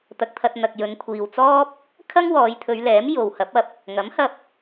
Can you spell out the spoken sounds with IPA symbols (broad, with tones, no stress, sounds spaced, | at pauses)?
t̪ ɐ˨ k̚ t̪ʰ ɐ˧ t̚ n̪ ɐ˨ k̚ j ɵ˨˧ n kʷʰ iː˨ w t͡s ɔː˥ p̚ | kʰ ɐ˥ ŋ w ɔː˨˧ j t̪ʰ ɵ˨˧ ɥ l ɛː˨˥ m j o˨ w h ɐ˨˥ p̚ ɐ˨ p̚ | ŋ ɐ˨˥ m h ɐ˧ p̚